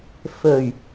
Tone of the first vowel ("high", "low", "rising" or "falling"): low